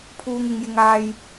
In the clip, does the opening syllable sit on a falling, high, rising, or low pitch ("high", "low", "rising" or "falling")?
high